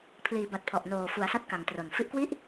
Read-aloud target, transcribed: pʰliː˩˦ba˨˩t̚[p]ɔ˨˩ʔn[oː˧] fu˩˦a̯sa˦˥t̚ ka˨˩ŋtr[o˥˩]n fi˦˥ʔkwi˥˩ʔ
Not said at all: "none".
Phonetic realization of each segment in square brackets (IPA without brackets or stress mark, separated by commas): pʰ, oː˨˩, o˨˩